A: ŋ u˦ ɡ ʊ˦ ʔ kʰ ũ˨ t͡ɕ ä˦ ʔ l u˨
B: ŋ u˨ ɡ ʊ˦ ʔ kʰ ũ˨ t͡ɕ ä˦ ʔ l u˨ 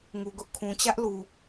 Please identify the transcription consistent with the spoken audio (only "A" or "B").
B